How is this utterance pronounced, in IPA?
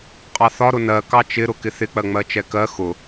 qʼɑθɒ ɾʊnɜ kɑt͡ʃɪ ɾʊkɪθɪ k͡pɜŋ͡mɜt͡ʃɛkɜ xʊ

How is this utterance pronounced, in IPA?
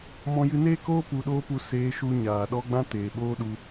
mɔ̃˧jɨ˧neː˦koː˦ pu˧ɗoː˦pu˧ seː˧ʃu˧ ɲaː˨ɗɔ˧ɡ͡bã˧ teː˨ɓoː˦ɗu˧

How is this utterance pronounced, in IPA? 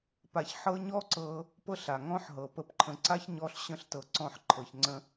pa˧ç ħɤ˦ ɲɔ˦ǀɤ˧ | pɤ˦ɬa˨ ŋɔ̃˦ħɦɤ˨ pə˧pǃʰə̃˧ ǀa˦çɲɔ˧ɬɕə̃˧ɬtɤ˨ ǀɔ̃˦˨ħǃʰɤ˨çŋ͡ǀə̃˦

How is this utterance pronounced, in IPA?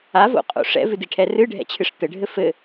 avo̰qʼo̰ ʂɛ̰vɨdiʈʰɛ rɨɖʱɛ̰t͡ɕʰɨʂ t̪ɘɖʱɘ fɘ

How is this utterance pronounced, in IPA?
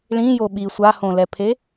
ɭĩjo ɓi sʷahõlɛpʰe

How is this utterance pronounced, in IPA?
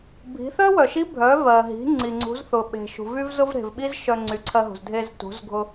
bʱi̤˩˧θœ˥wœ˩ʃi˧˥ bʱœ˩˧vɜ˩ɦi̤˩˧ ŋ͡ǀi˩ŋ͡ǀṳ˩˧zθʊ˩ ɓe̤˩ʃṳ˩v y˥vzʊ˥v ɾe̤˩vɓi˥z ʃœ˧ŋ͡ǀy˩˧ǀʰɜ˧ɦṳ˩z dʱe˧z tṳ˩˧z ɡʱʊ˧

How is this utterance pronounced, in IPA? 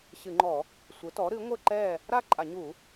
ɕɨ˧˩˧ŋ͡ǃɔ˧˩˧ | sʷɘ˩˥tɔ˩˥ɾɨ˩˥ ŋʷɘ˥˨ ǃɛ˥˨ | ɾa˥˨ǃʼa˧˩˧ɲu˧˩˧

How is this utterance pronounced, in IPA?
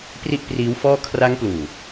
pri˥˩ʔpriː˦˥wfɔː˥˩ kʰra˦˥ŋpluː˨˩

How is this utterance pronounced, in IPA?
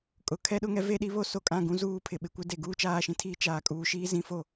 kʼʊ˨kʰɛ˦ɗʊ˦ŋɛ˦ ve˦ɗi˦ βo˦so˨ kʼã˦˨ɡũ˦ zuː˦pʰɪ˨ ɓɪ˨˦kʷɪ˦ de˨ ɡuː˦t͡ʃaː˦˨ʃĩ˦tʰiː˦ t͡ʃaː˨kʼuː˨ ʃiː˦zĩ˦fo˦˨

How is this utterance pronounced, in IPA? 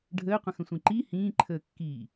ɖʱəːqʷə̃xə̃sʷĩ ǃi hĩːǃʰəːkːiː

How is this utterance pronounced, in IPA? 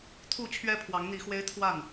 t̪ʰu˥˨ t͡ɕʰɥɛ˦pʰwɑ˨˦ŋn̪i˨˦xwe˦ɪ̯ t̪ʰwa˥˨n

